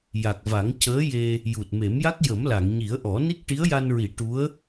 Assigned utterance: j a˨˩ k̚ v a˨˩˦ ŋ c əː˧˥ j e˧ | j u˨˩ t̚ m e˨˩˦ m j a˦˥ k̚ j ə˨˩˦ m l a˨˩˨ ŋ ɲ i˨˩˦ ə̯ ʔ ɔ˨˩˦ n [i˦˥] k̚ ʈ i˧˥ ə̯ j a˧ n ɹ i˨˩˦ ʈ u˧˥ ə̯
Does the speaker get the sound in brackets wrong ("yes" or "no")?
no